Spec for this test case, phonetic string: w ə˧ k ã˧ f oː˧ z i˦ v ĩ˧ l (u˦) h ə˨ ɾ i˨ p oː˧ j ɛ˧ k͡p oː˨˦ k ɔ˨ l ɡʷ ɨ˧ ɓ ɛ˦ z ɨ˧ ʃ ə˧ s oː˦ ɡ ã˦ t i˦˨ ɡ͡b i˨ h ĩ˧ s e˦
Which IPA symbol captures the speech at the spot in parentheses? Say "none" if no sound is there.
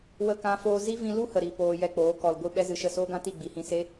u˦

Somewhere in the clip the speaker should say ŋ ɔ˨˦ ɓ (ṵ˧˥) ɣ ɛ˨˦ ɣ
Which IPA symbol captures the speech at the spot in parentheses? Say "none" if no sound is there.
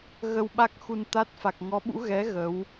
ṵ˧˥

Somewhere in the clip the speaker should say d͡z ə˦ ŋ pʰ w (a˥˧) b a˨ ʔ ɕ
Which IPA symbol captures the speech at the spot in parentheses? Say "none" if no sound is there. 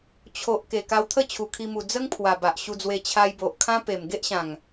a˨˩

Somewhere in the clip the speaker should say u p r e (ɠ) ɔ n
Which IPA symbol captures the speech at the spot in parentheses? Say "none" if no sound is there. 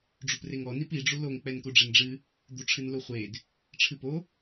ŋ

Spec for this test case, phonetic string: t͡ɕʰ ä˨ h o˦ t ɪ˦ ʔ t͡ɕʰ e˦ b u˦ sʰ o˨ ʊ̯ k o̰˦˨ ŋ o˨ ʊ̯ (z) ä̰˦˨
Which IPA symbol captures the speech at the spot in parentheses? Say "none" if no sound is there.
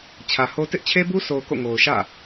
ʃ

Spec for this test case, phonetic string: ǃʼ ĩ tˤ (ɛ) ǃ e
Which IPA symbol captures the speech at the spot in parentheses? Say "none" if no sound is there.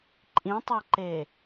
ɛ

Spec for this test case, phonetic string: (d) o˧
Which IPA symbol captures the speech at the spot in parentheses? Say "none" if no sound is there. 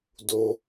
d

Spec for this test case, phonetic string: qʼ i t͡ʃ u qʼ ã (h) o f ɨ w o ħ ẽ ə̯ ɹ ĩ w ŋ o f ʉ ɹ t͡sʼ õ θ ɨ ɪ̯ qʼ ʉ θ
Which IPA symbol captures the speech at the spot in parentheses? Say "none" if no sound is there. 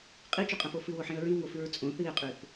f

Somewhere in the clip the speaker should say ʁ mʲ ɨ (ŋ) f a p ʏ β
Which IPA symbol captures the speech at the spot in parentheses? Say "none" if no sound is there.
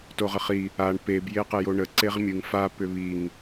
ŋ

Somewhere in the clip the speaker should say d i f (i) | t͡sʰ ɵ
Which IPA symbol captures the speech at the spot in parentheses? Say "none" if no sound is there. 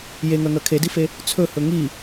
e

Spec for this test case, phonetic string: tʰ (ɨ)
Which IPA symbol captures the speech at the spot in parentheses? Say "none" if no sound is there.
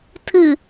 ɨ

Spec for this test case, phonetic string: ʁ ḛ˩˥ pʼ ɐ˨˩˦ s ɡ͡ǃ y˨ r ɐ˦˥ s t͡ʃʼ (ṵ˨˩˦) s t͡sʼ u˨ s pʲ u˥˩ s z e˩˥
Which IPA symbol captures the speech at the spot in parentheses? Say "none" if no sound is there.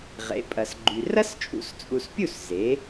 ṵ˨˩˦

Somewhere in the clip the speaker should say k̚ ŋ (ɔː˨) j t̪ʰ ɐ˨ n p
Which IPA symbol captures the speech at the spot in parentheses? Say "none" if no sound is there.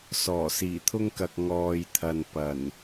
ɔː˨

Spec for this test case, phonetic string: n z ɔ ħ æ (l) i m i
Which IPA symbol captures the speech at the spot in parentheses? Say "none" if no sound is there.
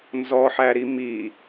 ɾ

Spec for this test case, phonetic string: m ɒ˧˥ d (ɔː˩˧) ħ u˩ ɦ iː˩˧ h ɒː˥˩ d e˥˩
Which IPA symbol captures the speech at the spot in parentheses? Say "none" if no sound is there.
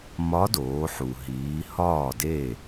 oː˩˧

